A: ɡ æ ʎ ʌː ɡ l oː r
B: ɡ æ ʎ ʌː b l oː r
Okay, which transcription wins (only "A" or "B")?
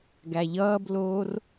B